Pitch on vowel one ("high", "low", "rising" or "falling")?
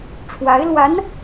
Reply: rising